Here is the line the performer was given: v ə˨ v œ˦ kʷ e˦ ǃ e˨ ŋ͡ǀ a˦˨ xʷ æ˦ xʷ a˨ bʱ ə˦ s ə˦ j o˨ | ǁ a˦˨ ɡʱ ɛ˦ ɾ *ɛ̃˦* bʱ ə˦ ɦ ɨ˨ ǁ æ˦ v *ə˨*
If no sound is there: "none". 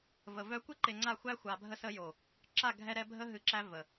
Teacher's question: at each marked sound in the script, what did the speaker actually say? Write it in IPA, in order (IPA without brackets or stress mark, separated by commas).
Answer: ɛ˦, ə˨